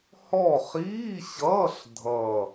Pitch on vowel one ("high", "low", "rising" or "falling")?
falling